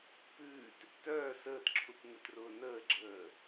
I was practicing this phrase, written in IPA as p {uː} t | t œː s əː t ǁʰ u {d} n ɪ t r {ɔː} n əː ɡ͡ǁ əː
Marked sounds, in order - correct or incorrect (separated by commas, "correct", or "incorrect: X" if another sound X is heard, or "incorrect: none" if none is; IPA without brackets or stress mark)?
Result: incorrect: ʉː, incorrect: t, incorrect: ʊː